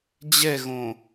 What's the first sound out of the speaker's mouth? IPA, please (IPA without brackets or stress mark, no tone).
d͡ʑ